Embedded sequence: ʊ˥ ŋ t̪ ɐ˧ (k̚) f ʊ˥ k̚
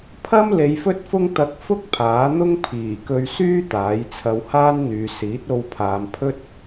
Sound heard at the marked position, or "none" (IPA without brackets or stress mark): k̚